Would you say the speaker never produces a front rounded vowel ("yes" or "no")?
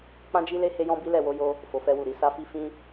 yes